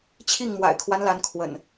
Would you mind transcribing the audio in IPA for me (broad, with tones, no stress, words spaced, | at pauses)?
t͡ɕʰi˥˨ŋmwa̰˨˩ɪ̯kʰwa˦nla˨˦n kʰwə̰˨˩n